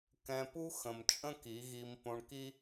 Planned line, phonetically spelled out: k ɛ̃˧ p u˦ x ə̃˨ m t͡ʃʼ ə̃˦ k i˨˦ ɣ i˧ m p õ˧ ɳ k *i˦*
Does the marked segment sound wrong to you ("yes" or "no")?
no